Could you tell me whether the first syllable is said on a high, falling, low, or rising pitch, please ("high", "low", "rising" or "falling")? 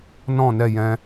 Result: falling